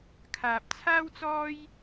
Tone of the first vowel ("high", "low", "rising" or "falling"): low